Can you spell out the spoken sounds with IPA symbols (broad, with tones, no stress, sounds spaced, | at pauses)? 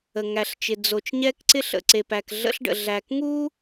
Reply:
ə˨ ŋ æ˨ ɬ t͡ʃ ɪ˨ d͡z o˨ t͡ʃ ɲ ɛ˦ k ǀ ɪ˦ ɬ ə̰˨ ǀ e˨ p æ˨ k ɮ ə̰˦ ɬ ɖ ə̰˨ ɮ æ˨ k ŋ u˦